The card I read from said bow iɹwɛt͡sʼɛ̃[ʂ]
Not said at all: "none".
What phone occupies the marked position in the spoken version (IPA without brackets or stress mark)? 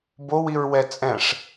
ʂ